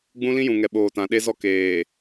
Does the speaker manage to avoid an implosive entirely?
no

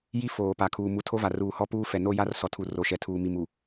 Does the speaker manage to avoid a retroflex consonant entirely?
yes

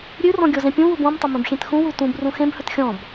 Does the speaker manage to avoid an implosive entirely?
yes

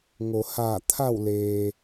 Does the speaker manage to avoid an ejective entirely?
yes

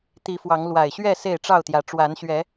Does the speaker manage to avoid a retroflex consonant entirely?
no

